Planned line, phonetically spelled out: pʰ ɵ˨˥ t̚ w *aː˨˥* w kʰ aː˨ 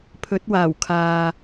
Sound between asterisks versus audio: incorrect: aː˨˩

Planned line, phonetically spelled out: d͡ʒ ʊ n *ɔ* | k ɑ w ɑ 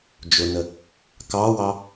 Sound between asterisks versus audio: incorrect: ə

